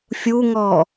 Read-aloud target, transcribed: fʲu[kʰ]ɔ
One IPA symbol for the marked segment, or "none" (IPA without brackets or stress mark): ŋ